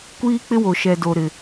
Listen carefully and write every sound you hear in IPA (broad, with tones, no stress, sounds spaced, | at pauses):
kʷ iː˦ k͡p ɪ˦ w o˨ ʃ ɛ˨ d o˨ ɾ ɪ˨